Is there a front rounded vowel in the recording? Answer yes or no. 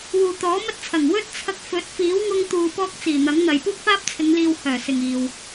yes